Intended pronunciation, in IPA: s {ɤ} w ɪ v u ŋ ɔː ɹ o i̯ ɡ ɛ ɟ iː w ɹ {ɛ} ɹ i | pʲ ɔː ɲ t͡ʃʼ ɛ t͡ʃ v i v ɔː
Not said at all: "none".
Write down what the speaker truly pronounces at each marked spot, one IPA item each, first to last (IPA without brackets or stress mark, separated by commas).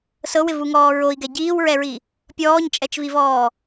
ɤ, ɛ